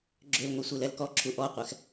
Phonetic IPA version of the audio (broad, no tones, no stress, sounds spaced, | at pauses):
ɡ͡ǁ ø l ŋʷ ɛ sʷ e l ɛ l k ɔ ǁʰ u ʔ ɔ qʷ ɛ x